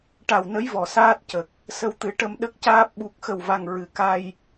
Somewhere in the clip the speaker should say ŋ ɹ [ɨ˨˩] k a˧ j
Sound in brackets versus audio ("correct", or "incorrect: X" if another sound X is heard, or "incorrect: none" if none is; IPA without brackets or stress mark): correct